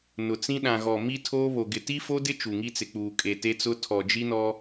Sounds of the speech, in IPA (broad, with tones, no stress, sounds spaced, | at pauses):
n ʊ˨ t͡s ĩ˦ ɗ ã˨ ɣ ɔ˨ m i˦ tʰ oː˦ β o˨ ɡ ɪ˨ t i˦ f o˦ d ɪ˦ t͡ʃ u˨ ŋ i˦ t͡s ɪ˨ k͡p uː˨ kʼ e˨ t e˦ t͡s ʊ˦ tʰ ɔ˨ d͡ʒ i˦ n ɔ˦